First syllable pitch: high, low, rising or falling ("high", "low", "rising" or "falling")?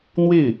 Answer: falling